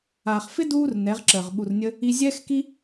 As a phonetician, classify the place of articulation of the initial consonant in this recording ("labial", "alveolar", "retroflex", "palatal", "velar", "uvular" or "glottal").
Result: uvular